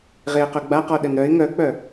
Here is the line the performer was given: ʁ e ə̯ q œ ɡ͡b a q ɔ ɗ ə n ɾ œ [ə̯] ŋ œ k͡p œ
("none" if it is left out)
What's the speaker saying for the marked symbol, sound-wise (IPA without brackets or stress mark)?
ɪ̯